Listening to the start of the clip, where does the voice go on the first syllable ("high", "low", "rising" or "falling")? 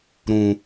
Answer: low